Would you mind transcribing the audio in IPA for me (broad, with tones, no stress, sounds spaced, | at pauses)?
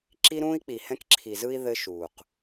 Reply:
ǁ i˦ ɾ ũː˦ i̯ k͡p i˨ h ɛ̃˦ k ǁʰ i˨ z ɯ˦ i̯ ð ɘ˦ ʃ uː˨ q